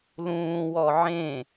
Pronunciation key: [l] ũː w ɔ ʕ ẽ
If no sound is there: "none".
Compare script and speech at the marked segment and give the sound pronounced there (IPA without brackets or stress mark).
l